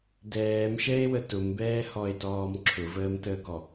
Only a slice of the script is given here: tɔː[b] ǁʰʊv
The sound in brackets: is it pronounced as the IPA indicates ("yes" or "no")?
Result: no